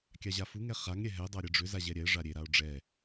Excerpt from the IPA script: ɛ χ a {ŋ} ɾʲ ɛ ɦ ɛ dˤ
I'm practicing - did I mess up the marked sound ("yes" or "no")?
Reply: no